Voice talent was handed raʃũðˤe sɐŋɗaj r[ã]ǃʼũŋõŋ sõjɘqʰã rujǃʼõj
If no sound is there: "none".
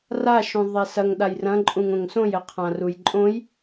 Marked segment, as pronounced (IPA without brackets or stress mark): ɐ̃